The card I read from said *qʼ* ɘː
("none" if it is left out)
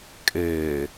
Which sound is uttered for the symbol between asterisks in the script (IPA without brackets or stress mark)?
kʼ